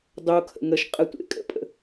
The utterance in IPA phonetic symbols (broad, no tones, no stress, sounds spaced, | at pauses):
dˤ o kʰ ə̰ ŋ ə ʃ qʼ ə tʷ ḛ kʼ ə̰ pʼ ə̰